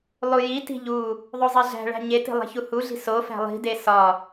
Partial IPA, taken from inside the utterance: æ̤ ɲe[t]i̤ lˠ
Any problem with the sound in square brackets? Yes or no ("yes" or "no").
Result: no